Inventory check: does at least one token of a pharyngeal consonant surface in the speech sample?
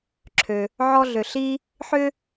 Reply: yes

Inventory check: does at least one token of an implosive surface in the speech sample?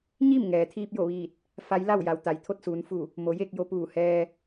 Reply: no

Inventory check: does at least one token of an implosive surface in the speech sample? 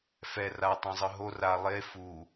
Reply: no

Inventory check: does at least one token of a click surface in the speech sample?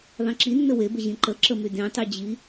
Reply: yes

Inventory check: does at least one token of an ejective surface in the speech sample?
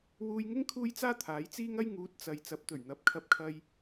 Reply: no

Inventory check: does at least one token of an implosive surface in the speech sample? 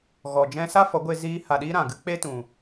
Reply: yes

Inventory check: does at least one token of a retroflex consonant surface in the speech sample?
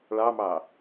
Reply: yes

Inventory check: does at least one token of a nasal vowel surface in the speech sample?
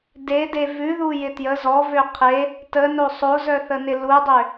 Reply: no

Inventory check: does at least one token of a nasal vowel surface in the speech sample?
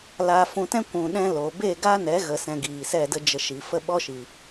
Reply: yes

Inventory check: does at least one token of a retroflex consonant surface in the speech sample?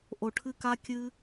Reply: yes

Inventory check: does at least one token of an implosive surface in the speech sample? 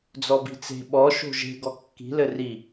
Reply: yes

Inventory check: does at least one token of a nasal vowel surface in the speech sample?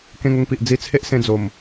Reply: yes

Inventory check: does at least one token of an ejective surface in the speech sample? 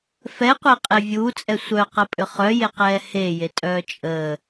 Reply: yes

